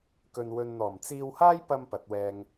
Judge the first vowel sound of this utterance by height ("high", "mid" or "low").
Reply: mid